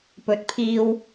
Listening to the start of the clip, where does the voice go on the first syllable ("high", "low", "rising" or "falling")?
rising